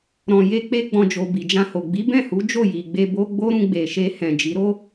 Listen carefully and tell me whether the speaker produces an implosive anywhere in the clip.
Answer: no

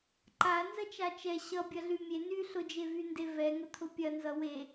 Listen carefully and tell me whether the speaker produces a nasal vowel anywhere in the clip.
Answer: no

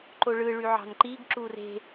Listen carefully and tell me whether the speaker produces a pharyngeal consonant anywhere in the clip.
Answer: yes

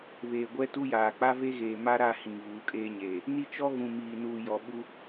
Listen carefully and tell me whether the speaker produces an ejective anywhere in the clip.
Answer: yes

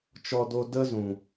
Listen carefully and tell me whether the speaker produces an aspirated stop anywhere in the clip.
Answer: no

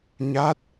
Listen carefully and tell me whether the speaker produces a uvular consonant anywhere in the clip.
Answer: no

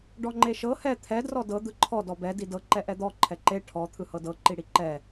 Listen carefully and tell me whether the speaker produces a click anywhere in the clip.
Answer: yes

